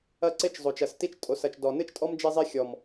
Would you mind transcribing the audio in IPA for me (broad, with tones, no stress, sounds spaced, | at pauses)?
ɐ˦ ǀ e˦ t͡ʃ zˤ o˨ t͡ʃ ɐ˨ s t i˦ t͡ʃ tʼ o˨ s ɐ˨ t͡ʃ d ɔ˨ n ɨ˦ t͡ʃ tʼ ɔ˦ m d͡ʒ e˦ zˤ i˦ xʲ ɔ˨ m